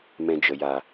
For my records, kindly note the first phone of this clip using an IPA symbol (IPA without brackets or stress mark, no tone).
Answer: m